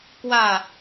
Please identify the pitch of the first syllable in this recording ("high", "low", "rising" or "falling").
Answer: falling